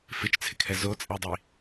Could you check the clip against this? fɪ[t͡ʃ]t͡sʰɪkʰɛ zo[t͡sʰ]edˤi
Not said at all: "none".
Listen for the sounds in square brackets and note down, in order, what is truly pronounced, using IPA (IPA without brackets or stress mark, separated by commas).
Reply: t͡ʃ, t͡sʼ